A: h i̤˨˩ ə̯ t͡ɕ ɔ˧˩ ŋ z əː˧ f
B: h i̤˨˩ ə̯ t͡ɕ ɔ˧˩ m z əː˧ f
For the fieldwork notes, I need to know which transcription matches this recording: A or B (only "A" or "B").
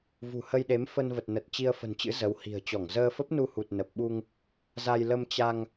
A